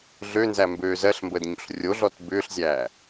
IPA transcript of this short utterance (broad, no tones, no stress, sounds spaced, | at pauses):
ɮ ø n z æ m b øː z ɜ ɬ m b əː d ɲ o̰ ɬ rʲ o ɮ ɔ t b ʏː ɬ zʲ æː